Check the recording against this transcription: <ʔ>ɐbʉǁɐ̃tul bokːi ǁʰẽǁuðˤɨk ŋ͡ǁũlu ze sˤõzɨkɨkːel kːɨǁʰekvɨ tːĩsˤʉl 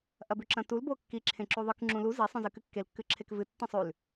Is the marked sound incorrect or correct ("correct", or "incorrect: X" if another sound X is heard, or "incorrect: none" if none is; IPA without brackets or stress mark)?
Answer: correct